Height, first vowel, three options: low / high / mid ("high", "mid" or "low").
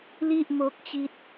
high